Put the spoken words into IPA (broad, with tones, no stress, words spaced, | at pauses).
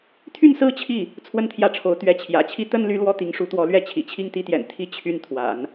t̪ʰy˥˩nsɹ̩˥ t͡ɕʰi˥˩ | t͡sʰwə˥˧nt̪ʰjä˥˩ʈ͡ʂʰo˧˥ʊ̯ t̪ɥɛ˧˥t͡ɕʰjä̰˨˩t͡ɕʰi˥ t̪ə˥nly˧˥ lwɔ˥t̪i˧˥ŋʂu˧˥t̪wɔ˧˥ lɥɛ˥˩ t͡ɕʰḭ˨˩t͡ɕʰi˥˧ŋ t̪i˥˩t̪jɛ̰˨˩n t̪ʰi˥˩ t͡ɕʰy˥n t̪ʰwa̰˨˩˦n